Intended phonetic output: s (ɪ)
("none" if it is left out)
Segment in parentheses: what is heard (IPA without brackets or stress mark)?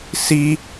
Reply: i